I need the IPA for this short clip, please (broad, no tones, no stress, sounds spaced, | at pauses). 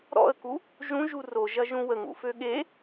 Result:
ɾ ɔ̰ ə̯ k u | ʒ ũ ʒ u r o ʒ ɐ ʒ ũ w ə ŋ ṵ f ø ɠ e